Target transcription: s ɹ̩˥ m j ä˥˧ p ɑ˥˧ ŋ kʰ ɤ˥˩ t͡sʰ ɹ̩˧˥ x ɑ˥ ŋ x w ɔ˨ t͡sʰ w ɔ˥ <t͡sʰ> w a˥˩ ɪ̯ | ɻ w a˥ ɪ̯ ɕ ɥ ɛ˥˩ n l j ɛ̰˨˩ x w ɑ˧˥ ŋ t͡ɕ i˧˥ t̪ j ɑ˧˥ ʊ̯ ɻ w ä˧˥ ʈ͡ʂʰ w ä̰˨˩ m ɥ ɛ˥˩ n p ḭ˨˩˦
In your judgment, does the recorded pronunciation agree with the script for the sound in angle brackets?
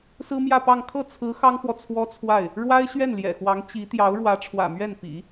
yes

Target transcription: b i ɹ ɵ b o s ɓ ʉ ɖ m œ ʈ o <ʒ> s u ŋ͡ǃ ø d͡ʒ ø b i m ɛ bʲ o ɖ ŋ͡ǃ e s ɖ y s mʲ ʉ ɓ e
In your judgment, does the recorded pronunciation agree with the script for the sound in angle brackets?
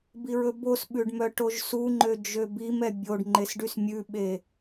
yes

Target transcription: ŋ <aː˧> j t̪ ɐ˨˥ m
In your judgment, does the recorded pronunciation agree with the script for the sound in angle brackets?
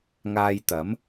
yes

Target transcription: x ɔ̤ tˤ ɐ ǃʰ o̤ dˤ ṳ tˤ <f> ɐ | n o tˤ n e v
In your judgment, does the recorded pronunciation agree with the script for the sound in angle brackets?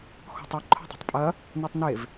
no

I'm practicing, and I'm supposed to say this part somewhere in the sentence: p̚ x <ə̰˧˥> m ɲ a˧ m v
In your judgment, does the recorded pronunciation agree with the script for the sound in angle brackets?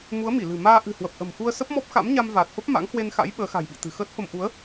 no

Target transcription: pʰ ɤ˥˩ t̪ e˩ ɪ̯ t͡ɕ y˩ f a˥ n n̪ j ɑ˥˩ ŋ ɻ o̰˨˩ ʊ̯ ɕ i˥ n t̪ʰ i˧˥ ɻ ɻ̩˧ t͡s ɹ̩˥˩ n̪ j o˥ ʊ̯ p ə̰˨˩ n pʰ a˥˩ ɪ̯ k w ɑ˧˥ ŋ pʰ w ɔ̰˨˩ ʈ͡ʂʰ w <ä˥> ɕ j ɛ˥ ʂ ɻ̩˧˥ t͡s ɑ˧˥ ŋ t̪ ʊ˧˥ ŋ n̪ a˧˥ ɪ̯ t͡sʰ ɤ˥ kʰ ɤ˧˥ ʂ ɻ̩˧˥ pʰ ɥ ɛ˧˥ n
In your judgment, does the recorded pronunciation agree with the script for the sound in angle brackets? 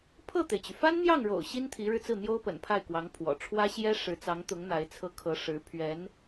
yes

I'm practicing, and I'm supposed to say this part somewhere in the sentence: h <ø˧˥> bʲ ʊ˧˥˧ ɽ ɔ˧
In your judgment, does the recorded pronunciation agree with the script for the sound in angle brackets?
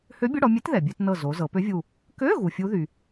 yes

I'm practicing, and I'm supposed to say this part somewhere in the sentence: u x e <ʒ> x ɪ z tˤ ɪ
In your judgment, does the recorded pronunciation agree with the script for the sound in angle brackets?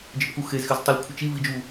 no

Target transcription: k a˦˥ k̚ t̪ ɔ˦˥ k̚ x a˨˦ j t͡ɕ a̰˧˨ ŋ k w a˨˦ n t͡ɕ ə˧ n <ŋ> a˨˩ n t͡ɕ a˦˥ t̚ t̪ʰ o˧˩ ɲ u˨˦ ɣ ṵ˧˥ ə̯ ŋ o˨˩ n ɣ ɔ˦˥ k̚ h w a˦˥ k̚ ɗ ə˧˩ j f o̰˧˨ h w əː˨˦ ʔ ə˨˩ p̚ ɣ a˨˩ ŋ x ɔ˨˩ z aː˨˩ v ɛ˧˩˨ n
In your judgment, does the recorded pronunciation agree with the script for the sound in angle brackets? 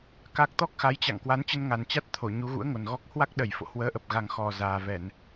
yes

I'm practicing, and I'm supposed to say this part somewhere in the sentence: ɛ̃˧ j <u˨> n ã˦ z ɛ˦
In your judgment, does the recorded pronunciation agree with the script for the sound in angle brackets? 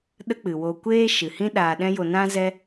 no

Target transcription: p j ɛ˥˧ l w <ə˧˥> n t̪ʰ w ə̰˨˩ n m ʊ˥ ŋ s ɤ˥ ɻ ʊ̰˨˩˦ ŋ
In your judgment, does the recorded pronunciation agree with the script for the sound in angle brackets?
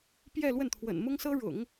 no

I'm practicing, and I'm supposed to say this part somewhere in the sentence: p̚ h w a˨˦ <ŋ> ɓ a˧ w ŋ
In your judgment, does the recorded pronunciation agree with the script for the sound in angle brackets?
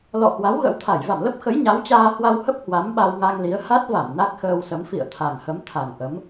no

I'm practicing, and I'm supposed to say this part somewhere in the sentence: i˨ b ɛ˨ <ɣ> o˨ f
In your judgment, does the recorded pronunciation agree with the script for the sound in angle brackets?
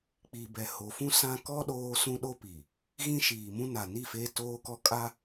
no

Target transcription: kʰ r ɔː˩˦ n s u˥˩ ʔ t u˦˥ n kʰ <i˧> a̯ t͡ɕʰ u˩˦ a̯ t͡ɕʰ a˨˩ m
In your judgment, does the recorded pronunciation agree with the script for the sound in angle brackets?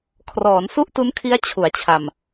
no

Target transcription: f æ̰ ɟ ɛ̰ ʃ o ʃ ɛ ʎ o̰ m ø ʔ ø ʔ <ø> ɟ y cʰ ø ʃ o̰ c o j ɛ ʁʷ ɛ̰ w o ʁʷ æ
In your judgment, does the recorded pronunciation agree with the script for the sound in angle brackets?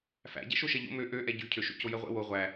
no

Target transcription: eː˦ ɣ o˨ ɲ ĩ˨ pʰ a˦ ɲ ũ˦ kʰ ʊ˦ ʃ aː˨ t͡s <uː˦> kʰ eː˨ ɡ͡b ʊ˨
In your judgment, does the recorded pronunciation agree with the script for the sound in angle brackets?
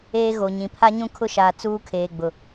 yes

